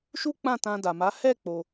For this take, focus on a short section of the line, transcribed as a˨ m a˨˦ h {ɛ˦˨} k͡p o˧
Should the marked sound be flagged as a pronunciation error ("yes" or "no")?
no